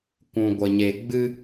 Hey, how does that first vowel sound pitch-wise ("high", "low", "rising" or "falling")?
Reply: low